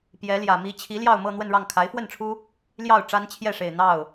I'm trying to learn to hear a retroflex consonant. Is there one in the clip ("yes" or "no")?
yes